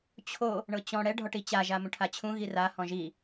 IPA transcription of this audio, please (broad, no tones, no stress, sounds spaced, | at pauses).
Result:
t͡ɕʰ o | ɳ ɤ t͡ɕ ɔ̃ ɽ ɛ ɖʱ ɔ ʈ i t͡ɕ a ʒ a m ũ ʈʰ a t͡ɕʰ ũ ɣ i r a h ɔ̃ ʒ i